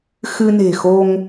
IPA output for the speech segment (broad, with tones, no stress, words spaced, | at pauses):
xɨ˧ne̤˨˩ xo˧ŋ